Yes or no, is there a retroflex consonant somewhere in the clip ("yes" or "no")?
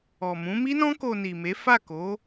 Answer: no